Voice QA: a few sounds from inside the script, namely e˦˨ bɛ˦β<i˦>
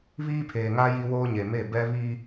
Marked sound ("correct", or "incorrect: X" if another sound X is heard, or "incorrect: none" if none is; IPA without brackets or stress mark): correct